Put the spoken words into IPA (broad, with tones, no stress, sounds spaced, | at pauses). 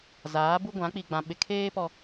z aː˨˦ b u˦ ɡʷ ã˨˦ k͡p i˨ ɡ͡b ã˨ ɓ ɪ˨ kʰ eː˦ p ɔ˨